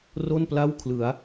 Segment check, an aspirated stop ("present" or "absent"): present